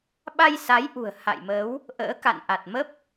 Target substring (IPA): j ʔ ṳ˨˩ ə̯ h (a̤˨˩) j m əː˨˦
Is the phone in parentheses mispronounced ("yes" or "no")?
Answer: yes